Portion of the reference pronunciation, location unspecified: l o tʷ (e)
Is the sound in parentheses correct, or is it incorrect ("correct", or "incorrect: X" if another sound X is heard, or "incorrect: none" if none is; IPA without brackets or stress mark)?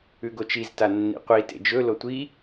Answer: incorrect: i